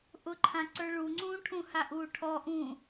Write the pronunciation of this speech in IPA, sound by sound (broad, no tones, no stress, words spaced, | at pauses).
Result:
ʔʊǃʰãǀə˞ ɭuŋ͡ǀũː ʈʰũhaʔuː ʈʰɔʔũː